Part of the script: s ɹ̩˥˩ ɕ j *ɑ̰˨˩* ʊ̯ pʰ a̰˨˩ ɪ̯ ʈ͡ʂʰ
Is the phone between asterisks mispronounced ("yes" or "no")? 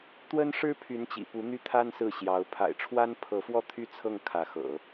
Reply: yes